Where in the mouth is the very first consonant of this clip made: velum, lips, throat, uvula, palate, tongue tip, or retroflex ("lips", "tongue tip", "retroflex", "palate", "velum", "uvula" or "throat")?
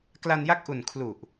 velum